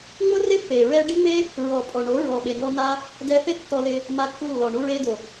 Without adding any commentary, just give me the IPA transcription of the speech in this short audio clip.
ŋ͡mʊ˦rɪ˦pːe˨ ɹɛ˧ɖi˦ŋ͡me˦ | ɹɔ˨pʼɔ˨ɳo˨˦ ɹɔ˨ɓe˨ŋɔ˧ na˦ | dɛ˧θɪ˦ tːɔ˧lɪ˧ | ma˧kːu˧lːɔ˨ ɳu˧ɹe˧do˨

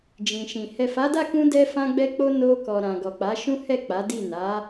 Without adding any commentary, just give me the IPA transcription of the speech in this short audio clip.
d͡ʒĩ˨ʃĩ˨ hɛ˨fa˨˦da˦˨kũ˧ dɛ˧fã˧ɡ͡bɛ˧k͡po˧ no˧kɔ˨ɾã˨ ɡɔ˨k͡pa˨˦ʃũ˦hɛ˦˨ k͡pa˨˦di˦˨ na˨˦

